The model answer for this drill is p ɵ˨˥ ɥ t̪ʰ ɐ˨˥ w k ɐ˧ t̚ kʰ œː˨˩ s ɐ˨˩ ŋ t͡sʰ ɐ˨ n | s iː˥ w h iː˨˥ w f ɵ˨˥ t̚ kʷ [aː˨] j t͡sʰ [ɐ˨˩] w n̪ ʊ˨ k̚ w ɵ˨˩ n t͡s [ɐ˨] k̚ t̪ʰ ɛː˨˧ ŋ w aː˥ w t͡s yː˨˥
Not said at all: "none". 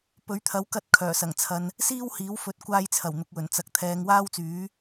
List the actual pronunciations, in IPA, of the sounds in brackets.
aː˧, ɐ˨˩, ɐ˨

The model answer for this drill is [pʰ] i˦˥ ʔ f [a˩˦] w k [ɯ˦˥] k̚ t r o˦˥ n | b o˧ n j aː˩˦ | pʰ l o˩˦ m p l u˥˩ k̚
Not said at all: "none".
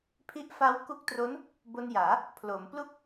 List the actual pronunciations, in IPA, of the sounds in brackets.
pʰ, a˦˥, u˦˥

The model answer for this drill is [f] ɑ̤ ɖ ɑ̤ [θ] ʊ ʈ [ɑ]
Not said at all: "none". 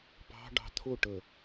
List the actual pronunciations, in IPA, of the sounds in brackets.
p, t̪ʰ, ə

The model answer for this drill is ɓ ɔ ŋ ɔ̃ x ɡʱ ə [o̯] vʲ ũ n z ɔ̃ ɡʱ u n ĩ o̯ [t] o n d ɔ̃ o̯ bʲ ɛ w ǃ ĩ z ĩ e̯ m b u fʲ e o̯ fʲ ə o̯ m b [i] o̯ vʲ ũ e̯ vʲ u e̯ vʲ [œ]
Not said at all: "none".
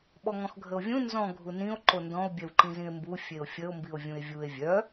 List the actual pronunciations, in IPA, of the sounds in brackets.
o̯, ǃ, i, œ

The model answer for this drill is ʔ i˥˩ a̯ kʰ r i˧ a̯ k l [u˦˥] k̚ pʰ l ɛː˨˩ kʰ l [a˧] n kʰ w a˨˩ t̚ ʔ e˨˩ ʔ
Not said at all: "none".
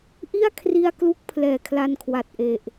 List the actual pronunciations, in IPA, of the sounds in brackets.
u˥˩, a˧

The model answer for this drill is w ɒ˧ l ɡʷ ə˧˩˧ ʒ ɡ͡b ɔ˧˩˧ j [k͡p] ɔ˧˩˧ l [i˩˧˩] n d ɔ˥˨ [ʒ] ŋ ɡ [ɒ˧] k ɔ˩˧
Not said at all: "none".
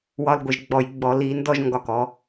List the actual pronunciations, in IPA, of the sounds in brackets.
ɡ͡b, i˧˩˧, ʒ, ɒ˧˩˧

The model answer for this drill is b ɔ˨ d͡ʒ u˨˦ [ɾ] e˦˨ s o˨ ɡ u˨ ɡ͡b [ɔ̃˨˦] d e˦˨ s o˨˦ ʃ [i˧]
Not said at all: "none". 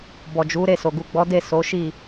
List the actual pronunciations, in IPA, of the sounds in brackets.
ɾ, ɔ˨˦, i˦˨

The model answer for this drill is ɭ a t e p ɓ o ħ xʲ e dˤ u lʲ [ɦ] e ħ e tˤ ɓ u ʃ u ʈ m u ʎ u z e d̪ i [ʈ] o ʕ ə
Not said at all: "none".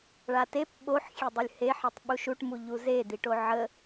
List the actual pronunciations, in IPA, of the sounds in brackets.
h, ʈ

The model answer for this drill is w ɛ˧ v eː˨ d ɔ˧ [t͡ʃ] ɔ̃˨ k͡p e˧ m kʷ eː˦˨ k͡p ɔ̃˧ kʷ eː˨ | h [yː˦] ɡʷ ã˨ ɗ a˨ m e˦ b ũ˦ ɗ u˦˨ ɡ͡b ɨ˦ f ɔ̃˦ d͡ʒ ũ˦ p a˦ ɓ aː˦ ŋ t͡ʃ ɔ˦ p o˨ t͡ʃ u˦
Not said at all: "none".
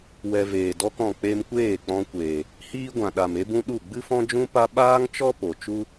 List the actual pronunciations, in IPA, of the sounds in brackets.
k, iː˦

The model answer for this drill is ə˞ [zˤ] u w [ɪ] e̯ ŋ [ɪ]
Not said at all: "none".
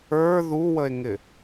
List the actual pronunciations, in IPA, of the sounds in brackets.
ð, ə, ɪ

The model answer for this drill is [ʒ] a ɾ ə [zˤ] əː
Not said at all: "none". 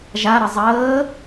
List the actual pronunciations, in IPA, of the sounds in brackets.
ʒ, zˤ

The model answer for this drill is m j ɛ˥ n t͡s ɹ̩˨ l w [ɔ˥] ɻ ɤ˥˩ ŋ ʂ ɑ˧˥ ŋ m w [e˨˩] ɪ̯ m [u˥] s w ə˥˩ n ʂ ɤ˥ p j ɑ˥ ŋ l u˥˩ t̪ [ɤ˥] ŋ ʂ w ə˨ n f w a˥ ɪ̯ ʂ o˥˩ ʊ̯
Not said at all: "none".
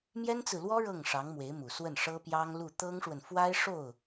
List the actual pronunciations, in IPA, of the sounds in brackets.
ɔ˥, e˧˥, u˨˩, ɤ˥

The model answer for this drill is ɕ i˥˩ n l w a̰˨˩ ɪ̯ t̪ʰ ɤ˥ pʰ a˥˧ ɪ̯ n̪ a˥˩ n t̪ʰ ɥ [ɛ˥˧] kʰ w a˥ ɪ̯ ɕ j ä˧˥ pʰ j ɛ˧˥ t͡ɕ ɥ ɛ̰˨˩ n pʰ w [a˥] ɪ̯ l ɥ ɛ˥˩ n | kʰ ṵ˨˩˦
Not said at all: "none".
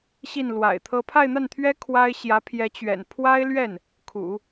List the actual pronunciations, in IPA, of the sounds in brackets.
ɛ˥, a˥

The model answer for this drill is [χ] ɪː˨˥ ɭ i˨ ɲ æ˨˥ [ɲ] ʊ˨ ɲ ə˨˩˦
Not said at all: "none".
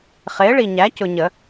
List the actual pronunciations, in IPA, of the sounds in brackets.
χ, c

